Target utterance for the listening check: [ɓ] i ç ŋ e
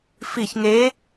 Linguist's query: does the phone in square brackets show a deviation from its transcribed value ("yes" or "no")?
yes